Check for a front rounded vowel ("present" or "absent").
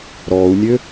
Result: present